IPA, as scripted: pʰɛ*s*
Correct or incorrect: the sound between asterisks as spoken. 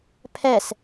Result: correct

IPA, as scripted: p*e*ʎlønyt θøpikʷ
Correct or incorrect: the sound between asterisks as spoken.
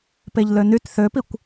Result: correct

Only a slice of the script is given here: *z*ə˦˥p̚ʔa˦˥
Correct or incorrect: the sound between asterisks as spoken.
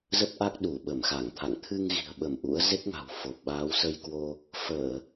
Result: correct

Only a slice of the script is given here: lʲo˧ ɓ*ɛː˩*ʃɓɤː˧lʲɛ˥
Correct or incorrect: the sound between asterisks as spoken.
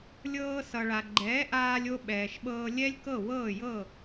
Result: correct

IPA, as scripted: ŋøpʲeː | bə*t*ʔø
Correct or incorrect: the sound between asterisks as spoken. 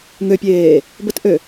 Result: correct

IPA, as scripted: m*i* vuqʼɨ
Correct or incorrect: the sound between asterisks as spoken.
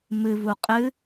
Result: incorrect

